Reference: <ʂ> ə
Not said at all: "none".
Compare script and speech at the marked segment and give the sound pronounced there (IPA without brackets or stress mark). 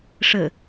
ʂ